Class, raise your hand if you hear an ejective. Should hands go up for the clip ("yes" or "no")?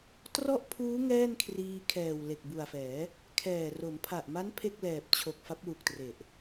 no